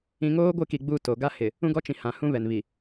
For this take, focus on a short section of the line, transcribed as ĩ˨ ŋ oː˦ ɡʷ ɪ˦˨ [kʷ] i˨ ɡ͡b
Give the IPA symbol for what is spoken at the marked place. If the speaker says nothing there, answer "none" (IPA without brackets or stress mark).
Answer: k